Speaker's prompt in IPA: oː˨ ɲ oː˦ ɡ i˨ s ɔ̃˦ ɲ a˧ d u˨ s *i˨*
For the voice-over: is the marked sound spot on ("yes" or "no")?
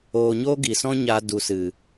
no